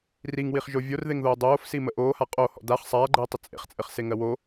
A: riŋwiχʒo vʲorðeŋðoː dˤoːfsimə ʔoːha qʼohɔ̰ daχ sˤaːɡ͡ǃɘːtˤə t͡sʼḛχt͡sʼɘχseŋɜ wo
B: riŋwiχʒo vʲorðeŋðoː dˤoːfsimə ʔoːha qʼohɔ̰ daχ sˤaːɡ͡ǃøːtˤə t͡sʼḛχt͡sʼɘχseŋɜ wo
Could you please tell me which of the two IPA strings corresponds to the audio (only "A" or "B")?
A